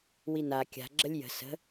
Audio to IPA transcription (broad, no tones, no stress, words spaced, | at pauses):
wina kʲa̤ ɡ͡ǁəlʲjə̤ sə̤